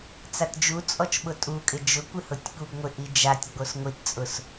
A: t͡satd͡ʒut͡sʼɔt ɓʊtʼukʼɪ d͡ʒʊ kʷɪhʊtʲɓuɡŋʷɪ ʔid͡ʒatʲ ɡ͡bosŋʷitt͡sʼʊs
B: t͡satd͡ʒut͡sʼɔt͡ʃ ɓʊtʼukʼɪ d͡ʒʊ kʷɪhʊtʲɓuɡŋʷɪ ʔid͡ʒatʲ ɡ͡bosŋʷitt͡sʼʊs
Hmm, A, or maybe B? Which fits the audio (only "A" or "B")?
B